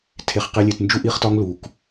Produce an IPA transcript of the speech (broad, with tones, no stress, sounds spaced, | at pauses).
tʰ e˧ χ q e˦ lʲ e˧ t n d͡ʒ u˦ ʔ i˦ χ t ɒ˦ ŋ l u˨ k